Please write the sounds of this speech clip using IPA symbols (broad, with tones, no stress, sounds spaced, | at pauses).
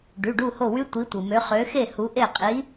ɖ y˩˧˩ ɖ u˦˨ h o˦˨ w y˦˥ tʷ i˨˦ tʷ ɯ˩ m ø˨˦ χ ø˨˦ x e˦˨ h u˨˦ ʔ e˦˨ qʼ i˨˦